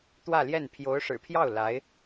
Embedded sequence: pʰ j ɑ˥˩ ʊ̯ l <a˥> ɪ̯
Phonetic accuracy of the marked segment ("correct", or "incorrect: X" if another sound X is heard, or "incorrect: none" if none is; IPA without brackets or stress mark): incorrect: a˧˥